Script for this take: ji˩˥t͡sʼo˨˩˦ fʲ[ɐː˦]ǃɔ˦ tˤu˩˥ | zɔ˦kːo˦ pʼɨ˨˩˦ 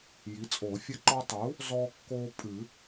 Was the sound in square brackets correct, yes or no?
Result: no